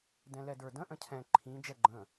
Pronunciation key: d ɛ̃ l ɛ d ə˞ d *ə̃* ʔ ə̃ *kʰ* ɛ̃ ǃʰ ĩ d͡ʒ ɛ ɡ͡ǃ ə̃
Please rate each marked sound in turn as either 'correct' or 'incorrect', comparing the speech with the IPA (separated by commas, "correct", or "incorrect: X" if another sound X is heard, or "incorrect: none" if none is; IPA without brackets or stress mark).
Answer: correct, incorrect: cʰ